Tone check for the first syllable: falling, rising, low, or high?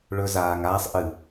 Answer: low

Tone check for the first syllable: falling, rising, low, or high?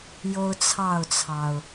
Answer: high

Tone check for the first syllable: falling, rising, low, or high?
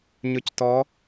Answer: rising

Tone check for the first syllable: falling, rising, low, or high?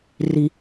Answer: low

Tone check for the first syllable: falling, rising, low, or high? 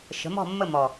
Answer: rising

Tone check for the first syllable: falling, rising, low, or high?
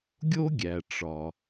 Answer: high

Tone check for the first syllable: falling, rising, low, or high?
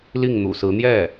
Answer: falling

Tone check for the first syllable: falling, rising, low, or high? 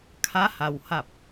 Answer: rising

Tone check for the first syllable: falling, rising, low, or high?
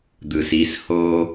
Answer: low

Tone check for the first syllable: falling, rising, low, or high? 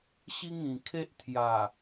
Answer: high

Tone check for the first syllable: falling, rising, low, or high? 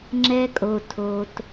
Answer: high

